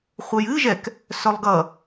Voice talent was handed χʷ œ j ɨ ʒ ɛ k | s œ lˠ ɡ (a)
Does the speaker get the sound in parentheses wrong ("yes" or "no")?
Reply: yes